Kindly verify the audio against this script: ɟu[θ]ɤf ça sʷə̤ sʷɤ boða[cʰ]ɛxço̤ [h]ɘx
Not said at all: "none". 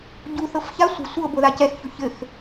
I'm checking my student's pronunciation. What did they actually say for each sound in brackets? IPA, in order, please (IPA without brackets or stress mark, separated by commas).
θ, c, ç